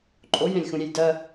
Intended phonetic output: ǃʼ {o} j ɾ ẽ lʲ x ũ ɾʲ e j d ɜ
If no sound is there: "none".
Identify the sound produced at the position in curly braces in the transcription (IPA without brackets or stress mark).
o